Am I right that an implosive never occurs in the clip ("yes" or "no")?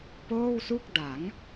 yes